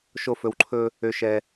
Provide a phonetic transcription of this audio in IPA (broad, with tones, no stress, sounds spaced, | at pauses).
ʃ o˦ f ɵ˧ w ǃʰ ɵ˦ | ø˦ ʃ ɛ˦